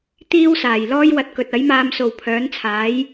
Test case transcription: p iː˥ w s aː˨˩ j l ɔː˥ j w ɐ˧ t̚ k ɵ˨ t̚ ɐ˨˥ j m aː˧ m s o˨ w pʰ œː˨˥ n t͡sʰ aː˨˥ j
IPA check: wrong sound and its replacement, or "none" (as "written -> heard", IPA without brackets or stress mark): p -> t̪